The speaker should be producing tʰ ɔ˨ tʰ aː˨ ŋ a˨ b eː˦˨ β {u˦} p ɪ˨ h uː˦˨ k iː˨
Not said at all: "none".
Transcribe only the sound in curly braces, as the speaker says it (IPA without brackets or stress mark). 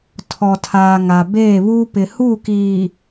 uː˦